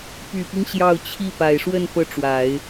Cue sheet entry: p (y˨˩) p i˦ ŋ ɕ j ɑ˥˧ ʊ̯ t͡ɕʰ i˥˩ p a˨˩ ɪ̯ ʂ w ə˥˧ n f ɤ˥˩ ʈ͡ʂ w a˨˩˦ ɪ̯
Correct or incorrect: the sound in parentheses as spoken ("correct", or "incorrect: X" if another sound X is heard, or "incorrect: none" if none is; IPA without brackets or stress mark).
correct